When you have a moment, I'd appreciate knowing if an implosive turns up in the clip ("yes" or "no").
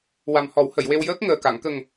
no